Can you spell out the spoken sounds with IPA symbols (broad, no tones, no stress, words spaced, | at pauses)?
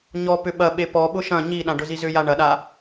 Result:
ɲɔ pʏɓɐ ɓepɔ ɓʊʃɐ̃ ɲiɗã ɖʊzizʏja ɳɐɗa